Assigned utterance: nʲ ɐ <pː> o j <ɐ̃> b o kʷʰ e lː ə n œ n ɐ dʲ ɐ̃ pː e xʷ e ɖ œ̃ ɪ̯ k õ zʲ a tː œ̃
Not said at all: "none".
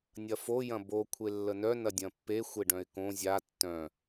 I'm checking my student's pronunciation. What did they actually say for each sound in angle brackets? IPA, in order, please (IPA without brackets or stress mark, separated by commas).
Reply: f, ɐ̃